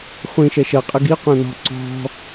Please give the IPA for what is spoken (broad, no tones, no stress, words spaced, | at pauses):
χʷĩ ʃɛʃɐqʼɨ ɡi qʷɛ̃nɔ̤ ǀɔ̤